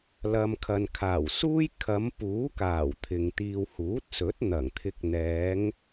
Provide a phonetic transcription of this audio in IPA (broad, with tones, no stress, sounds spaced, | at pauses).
l ɐ˨ m kʰ ɐ˨ n kʰ aː˨˩ w s uː˥ j kʰ ɐ˨˧ m p uː˨˥ k aː˨˩ w t̪ʰ ɪ˨ ŋ t̪ iː˧ w h uː˨˥ t̚ s ɵ˨˥ t̚ n̪ ɐ˨˩ ŋ t̪ʰ ɪ˨˥ k̚ n̪ ɛː˨˧ ŋ